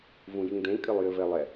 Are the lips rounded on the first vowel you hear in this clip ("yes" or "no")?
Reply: yes